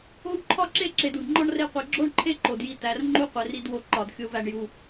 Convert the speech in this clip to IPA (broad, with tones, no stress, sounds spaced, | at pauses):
o˥ w ǃʰ ɒ˥ ǁ e˥ ǁ e˨ d u˩ d ŋ͡ǃ ɒ˥ ɳ r e˦ qʷ i˩ ɡ͡ǁ o˥ ɳ ǃʰ e˥ ǃ o˩ d j i˨ t̪ æ˩ r ŋ͡ǃ u˦ qʷ e˩ r i˨ d w o˨ ǃ ɒ˩ d xʲ o˨ v æ˩ ɳ j u˩